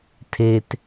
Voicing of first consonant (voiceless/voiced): voiceless